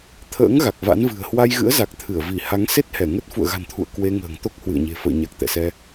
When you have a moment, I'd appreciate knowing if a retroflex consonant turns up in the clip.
no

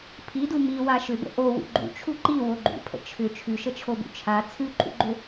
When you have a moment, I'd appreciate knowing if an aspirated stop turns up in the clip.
yes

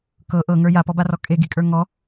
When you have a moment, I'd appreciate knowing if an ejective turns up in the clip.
yes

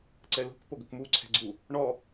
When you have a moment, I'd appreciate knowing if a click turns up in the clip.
yes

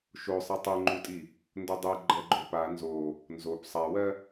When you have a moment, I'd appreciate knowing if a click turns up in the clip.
yes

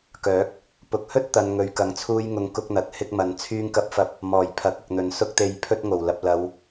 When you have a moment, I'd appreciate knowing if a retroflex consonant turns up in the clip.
no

